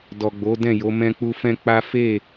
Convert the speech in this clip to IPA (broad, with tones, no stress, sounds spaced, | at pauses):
d ɔ˨ ɡ͡b o˨˦ d ɛ̃˦˨ j o˨˦ m ɛ̃˧ k͡p u˧ f ɛ̃˦ k͡p a˦ f e˦˨